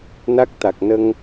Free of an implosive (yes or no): yes